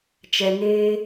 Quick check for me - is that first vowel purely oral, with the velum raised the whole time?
yes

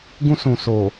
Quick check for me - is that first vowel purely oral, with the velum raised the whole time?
no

